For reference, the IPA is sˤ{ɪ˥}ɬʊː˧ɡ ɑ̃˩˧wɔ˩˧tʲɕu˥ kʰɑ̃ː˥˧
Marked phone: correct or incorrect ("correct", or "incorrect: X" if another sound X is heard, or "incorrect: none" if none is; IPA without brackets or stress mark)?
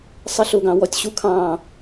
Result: correct